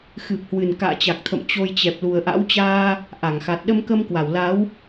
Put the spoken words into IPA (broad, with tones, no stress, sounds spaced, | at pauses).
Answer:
x ɨ˨˩ p̚ h w ɨ˨˩ n k a̰ː˧˨ t͡ɕ a˨˩ k̚ t̪ʰ ə̰˧˨ m t͡ɕ o˧ j t͡ɕ ɛ˨˩ p̚ l u˨˩ ə̯ ʔ a̰˧˥ w t͡ɕ aː˧ | ʔ a˧˩ ŋ x a˨˩ t̚ ɗ ə˧ m k ə˧ m k w a˧˩ w l a˨˦ w